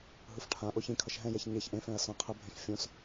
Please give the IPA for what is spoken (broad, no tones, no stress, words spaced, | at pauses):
ɦɯfʈʰã ʔoçĩkʰʌʃ ɦɛ̃jɛç ɲeç ʔẽfɛ̃ɐ̯ sõɐ̯qʰɛbʱẽɬ fʲõs